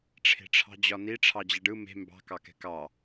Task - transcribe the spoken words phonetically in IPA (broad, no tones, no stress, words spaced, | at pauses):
ʈ͡ʂʰe̤ʈ͡ʂʰɑ̤d͡ʑɒni ʈ͡ʂʰɑd͡ʑɛɖɯ me̤ mbɑ̤ kɑkɛ̤kɑ